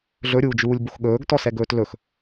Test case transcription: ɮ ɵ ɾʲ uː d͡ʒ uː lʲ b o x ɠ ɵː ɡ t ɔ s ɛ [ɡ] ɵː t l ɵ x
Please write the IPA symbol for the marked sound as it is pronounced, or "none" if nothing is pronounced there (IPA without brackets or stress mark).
ɡ